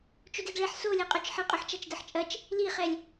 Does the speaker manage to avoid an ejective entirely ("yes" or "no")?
no